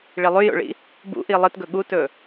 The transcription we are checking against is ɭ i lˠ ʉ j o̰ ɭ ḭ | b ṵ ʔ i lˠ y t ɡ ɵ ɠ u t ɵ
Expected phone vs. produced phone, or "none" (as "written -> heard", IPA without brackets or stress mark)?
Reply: y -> ɨ